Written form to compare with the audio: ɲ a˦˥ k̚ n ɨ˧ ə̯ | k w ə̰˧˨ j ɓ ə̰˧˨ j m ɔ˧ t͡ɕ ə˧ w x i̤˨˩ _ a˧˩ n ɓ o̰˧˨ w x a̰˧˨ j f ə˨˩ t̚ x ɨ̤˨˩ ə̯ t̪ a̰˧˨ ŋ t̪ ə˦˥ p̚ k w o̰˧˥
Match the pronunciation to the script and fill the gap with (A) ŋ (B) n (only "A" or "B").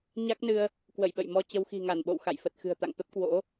A